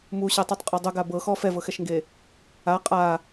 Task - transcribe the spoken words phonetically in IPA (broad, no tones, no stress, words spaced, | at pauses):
muɕetˤutˤqʼɔ dˤuɡa bɤxɔ fɛvɤxɛʃŋɡe | a qʼa